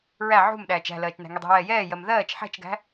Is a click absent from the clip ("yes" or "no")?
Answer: yes